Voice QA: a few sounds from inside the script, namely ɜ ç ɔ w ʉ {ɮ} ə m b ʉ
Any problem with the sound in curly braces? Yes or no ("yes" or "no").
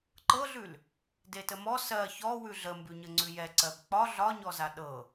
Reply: no